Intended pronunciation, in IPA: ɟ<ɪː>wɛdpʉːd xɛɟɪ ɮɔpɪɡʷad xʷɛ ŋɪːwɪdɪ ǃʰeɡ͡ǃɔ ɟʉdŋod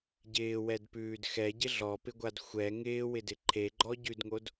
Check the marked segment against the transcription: correct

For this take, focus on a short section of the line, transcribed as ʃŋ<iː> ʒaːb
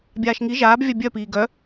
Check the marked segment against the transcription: incorrect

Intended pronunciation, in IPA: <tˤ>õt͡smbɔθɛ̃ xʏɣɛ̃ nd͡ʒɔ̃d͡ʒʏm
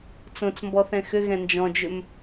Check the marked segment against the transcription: incorrect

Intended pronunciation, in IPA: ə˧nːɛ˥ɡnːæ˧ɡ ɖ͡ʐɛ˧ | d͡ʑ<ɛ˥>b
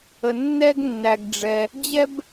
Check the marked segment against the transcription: correct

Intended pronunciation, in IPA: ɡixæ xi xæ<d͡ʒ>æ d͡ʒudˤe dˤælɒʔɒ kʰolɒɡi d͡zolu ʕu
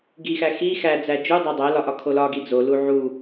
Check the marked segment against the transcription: incorrect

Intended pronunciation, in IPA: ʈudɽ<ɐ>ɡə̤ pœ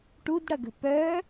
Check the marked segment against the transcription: correct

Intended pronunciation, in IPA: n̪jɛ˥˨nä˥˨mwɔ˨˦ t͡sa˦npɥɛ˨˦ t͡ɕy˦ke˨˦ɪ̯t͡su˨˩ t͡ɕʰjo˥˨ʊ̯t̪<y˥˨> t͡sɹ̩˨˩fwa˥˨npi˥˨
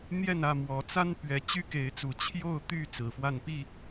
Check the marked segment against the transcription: correct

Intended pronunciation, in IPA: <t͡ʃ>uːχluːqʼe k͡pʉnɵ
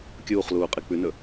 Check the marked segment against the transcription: incorrect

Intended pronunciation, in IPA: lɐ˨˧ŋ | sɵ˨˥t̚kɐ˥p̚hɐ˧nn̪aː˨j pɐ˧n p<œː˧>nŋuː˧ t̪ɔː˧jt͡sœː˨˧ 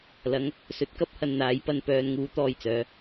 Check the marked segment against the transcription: correct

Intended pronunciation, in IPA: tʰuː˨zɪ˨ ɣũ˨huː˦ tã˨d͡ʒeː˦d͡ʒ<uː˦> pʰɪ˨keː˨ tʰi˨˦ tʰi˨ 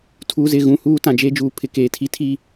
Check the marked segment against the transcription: incorrect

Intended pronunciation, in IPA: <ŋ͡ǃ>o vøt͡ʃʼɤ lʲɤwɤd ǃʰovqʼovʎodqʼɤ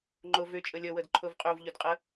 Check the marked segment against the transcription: correct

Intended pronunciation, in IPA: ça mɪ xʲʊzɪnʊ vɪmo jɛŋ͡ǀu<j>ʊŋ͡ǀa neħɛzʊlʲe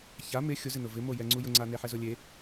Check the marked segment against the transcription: correct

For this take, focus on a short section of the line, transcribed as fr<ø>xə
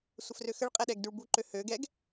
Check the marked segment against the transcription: correct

